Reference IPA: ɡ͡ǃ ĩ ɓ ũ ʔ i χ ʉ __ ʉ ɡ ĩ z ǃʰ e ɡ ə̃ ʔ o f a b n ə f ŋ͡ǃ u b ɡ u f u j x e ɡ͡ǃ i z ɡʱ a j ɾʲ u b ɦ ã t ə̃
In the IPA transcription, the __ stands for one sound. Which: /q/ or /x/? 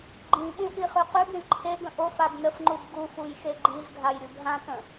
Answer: q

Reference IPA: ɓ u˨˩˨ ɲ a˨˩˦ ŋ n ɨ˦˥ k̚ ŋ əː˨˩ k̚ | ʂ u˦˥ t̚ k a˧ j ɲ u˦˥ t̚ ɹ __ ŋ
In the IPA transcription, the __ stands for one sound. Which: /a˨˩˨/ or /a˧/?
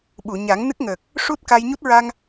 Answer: a˧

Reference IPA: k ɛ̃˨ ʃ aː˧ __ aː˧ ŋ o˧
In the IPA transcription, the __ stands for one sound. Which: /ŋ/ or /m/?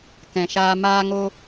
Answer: m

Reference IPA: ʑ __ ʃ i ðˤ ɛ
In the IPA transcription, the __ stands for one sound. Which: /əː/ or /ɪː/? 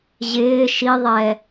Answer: ɪː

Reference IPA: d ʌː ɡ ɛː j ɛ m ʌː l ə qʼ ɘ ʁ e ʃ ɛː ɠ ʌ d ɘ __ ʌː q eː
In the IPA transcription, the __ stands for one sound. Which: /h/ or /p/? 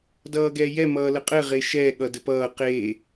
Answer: p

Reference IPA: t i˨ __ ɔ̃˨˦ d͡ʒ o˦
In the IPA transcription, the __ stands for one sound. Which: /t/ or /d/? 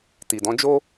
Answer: d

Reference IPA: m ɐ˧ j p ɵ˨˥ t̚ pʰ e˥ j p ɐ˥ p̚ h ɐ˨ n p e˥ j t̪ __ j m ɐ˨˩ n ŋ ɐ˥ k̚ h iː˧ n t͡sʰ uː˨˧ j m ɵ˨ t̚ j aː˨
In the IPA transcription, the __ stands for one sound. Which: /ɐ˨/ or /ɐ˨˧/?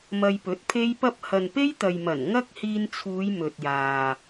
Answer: ɐ˨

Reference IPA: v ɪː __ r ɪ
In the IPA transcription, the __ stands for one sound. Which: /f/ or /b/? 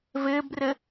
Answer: b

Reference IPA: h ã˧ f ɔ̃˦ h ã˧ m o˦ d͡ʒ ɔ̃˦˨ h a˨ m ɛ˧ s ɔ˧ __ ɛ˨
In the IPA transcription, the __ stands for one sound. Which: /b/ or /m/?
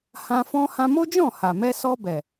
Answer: b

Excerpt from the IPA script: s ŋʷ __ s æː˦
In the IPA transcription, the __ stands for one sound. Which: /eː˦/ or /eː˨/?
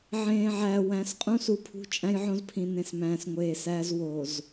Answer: eː˨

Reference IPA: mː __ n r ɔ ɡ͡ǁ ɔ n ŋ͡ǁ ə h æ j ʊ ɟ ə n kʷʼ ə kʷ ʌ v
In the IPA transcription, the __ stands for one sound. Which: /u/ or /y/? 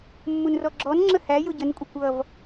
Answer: u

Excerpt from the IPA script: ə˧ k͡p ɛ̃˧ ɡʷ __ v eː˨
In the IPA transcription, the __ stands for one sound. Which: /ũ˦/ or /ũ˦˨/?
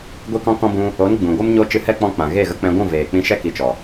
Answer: ũ˦˨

